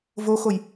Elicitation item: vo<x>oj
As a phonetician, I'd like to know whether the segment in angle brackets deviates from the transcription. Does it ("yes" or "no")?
no